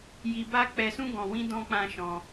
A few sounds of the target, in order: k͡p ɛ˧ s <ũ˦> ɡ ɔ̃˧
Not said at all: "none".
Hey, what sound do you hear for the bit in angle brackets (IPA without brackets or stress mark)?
ũ˦